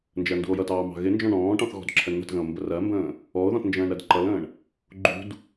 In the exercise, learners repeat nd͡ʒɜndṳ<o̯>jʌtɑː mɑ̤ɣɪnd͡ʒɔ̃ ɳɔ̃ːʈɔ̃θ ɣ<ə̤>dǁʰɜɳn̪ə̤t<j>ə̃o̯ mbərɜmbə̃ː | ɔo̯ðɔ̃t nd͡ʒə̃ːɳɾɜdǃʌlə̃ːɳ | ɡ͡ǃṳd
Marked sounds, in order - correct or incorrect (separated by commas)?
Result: correct, incorrect, incorrect